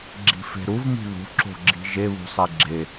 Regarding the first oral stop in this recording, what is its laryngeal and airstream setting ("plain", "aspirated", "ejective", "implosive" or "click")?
click